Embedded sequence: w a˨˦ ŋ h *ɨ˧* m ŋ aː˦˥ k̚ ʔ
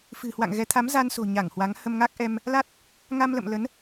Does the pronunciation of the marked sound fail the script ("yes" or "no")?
yes